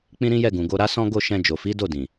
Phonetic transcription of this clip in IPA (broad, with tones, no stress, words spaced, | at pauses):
k͡pĩ˦ɾĩ˦jɛ˦˨ ɡũ˨ɡo˧ɾa˦sɔ̃˦ ɡo˦˨ʃɛ̃˧ d͡ʒo˨fi˨˦ do˦˨dĩ˨